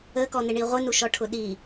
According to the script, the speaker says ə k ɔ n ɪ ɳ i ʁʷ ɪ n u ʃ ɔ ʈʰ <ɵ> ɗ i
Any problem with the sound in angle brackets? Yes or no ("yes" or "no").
yes